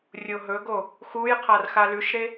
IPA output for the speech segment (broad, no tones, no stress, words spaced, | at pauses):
rʲoɦɵɡo | xujqʰar xalʉʃɾe